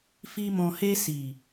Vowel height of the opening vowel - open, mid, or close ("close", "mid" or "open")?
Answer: close